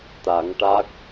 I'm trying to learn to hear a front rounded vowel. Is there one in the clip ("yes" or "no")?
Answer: no